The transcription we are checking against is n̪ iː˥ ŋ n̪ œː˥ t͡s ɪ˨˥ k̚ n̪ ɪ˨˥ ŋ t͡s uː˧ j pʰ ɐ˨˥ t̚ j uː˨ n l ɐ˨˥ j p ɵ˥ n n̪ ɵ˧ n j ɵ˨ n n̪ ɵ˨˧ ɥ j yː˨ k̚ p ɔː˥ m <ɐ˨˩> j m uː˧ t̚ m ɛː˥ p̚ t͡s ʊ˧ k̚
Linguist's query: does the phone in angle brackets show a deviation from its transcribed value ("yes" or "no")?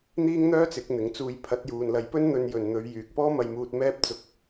yes